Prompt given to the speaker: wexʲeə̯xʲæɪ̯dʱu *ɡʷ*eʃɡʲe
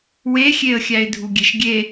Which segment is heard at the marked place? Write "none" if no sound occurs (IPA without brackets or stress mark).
ɡʲ